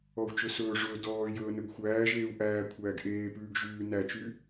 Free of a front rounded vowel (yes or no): no